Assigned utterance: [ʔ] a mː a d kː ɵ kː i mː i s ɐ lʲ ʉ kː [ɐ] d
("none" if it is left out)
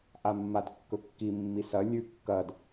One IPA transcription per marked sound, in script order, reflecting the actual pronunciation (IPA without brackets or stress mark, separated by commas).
ʔ, ɐ